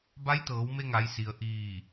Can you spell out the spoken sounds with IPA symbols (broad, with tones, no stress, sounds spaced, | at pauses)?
b a˧˥ j t̪ ɤː˩˧ w m e˧ ŋ a˩˧ j s i˩ ə̯ ʔ iː˧˩